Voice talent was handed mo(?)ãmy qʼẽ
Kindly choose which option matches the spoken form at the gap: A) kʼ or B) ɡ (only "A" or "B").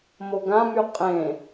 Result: B